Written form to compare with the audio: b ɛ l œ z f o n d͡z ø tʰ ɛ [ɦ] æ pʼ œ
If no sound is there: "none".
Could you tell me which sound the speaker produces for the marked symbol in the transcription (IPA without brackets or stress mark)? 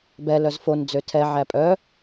ʕ